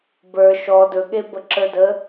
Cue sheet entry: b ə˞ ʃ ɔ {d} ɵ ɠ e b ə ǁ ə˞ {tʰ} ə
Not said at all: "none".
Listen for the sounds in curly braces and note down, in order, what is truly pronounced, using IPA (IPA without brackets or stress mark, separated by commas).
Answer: d, d